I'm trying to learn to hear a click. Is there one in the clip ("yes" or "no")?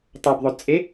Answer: no